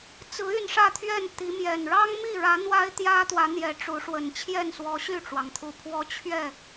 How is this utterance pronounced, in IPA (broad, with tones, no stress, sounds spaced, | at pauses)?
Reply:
t͡s ɹ̩˨˦ y˥˨ n ʂ ä˥˨ t̪ʰ ɥ ɛ˥˨ n t̪ i˨˦ m j ɛ˨˩ n ɻ ɑ˦ ŋ m i˥˨ ɻ ä˨˦ n̪ w a˦ ɪ̯ t̪ j ä˦ t̪ w ä˨˦ n̪ j ɛ˨˦ ʈ͡ʂ u˨˦ ʂ w ə˨˩ n t͡ɕʰ j ɛ˥˨ n s w ɔ˨˦ ɕ y˥˨ ʈ͡ʂ w ɑ˩ ŋ t̪ʰ u˨˩ pʰ w ɔ˦ t͡ɕʰ ɥ ɛ˥˨